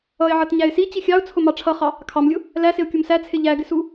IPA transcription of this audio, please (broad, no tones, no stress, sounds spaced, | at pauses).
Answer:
ʌ ɪ̯ ʕ ʌ t ɲ æ ɪ̯ s i t͡ɕ i xʲ ɑ ʊ̯ t͡sʰ ʊ m ɑ ʈ͡ʂʰ ʌ χ ɑ | kʰ ɑ m lʲ ʊ | l æ s ɪ ʊ̯ kʲ u m s æ t͡sʰ ɪ ʎ æ ɡ ɪ s u